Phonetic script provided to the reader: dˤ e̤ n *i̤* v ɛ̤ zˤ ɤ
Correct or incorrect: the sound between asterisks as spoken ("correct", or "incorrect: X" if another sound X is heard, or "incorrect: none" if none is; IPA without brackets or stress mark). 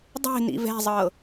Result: incorrect: ḭ